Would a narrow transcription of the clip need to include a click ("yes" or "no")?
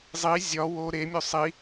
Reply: no